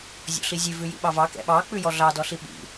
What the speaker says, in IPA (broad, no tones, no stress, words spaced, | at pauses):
zʲɔ̰ɬizʲʉ vʉjḭɓɑvɑ kɛ̰ɓɑ k͡pʉjɔɮɑ dɔɬiɓḭ